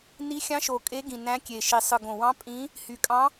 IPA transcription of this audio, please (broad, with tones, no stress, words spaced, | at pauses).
ni˧˥xʲɑ̃˧˥ʃo˨˩ kʼe˧˥ɡĩ˨˩ næ̃˧˥kʲe˨˩ʃi˨˩ sˤɯ˨˩ɡõ˨˩wɑ̃˧˥ pʼĩ˧˥ | hy˨˩kʼɑ̃˧˥